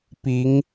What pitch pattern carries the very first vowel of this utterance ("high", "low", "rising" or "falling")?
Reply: rising